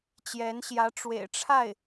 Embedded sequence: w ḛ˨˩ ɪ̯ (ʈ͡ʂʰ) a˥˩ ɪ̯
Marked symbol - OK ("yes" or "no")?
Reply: yes